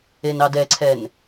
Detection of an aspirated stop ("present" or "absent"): present